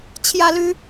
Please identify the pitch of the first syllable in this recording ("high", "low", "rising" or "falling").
high